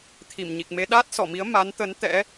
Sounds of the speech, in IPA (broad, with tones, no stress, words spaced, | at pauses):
t̪ʰi˧˩mɲi˨˩k̚me˨˦ ɗaː˦˥t̚sɔ˧˩mi˨˦ə̯ ma˨˦nt̪ə˨˦n t̪ɛ̰˧˥